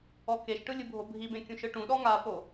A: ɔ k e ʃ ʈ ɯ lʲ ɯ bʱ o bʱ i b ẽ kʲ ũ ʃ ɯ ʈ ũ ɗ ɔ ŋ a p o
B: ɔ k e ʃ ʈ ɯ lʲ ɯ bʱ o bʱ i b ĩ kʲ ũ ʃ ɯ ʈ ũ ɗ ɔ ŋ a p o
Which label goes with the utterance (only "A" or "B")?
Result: A